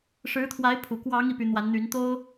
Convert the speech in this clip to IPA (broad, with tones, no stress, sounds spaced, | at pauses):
ʂ ɻ̩˧˥ t̪ʰ w a˧˥ ɪ̯ pʰ u˨˩ k w ɑ˧˥ ŋ i˧˥ p y˧˥ n̪ w a˧˥ n n̪ y˧˥ n t̪ o˥ ʊ̯